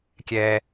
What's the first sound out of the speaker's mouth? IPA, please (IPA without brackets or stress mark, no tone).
kʲ